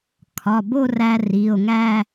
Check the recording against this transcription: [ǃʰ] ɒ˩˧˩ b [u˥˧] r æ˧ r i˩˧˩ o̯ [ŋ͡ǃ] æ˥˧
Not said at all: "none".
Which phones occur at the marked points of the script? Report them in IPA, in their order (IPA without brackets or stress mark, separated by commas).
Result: kʰ, o˥˧, ŋ